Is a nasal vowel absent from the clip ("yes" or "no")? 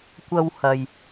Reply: yes